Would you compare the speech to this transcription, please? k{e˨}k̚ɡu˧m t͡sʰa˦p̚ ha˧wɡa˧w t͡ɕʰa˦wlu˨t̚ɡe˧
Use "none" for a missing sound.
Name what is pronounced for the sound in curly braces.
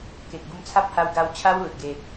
e˨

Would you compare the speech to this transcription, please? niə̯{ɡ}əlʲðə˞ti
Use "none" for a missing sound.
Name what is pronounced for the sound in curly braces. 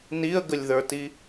ɡ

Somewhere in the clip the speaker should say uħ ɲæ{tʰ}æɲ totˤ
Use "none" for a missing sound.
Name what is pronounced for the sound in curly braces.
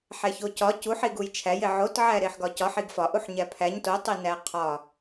pʰ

